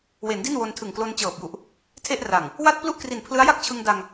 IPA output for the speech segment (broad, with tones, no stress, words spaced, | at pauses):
we˩˦n di˥˩nwo˧ntʰɯ˨˩ŋ klo˧nt͡ɕɤː˨˩p̚ju˨˩ʔ | tʰe˥˩ʔra˨˩ŋ | wa˥˩t̚plu˥˩ʔkri˨˩n pʰlɯ˦˥a̯ja˥˩k̚t͡ɕʰɯ˧ŋda˧ŋ